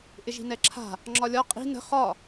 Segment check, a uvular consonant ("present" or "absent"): present